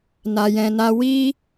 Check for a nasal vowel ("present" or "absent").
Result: present